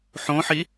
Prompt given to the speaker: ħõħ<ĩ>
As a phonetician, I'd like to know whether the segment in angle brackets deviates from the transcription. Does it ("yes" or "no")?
yes